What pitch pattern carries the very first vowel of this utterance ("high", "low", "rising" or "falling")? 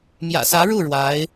low